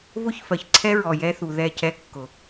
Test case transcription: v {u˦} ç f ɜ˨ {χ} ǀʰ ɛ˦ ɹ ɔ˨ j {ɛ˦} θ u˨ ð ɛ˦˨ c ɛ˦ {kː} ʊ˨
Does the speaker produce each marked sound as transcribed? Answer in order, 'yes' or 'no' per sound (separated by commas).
no, no, yes, yes